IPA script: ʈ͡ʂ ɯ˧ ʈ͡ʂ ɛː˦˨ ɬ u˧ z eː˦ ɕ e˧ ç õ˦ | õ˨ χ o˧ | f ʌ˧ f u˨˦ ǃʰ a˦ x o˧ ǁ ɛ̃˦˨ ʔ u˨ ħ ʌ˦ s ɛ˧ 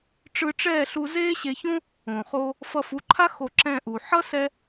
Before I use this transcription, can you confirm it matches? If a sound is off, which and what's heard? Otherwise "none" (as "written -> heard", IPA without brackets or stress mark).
none